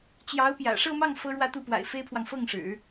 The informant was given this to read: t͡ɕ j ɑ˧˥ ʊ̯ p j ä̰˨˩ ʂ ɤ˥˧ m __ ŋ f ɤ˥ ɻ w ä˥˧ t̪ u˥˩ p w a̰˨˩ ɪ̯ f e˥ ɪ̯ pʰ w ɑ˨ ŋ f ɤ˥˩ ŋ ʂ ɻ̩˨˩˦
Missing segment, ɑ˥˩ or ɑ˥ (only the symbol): ɑ˥˩